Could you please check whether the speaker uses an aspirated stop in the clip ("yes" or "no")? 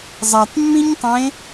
no